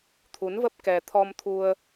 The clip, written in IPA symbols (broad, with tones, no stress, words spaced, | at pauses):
t̪ʰu˨˦nvə˦˥p̚ kɛ˧ t̪ʰɔ˧mt̪ʰu˧ə̯